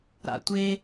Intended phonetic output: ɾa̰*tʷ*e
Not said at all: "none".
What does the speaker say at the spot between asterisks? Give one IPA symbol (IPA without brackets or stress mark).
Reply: tʷ